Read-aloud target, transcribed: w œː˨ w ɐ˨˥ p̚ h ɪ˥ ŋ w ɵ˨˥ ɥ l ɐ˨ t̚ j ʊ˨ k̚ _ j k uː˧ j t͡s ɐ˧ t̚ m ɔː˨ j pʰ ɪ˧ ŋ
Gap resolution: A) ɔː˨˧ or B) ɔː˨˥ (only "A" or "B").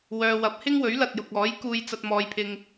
B